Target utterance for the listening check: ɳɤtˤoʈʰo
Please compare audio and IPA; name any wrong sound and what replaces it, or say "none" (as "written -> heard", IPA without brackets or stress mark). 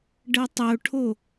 ɳ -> ɖ